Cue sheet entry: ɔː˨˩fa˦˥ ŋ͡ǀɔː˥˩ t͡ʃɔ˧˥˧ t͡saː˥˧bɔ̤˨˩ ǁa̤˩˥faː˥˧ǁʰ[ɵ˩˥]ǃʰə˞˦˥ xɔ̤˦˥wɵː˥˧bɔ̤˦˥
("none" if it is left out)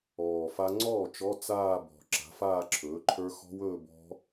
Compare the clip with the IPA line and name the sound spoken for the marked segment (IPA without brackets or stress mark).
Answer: ɵː˩˥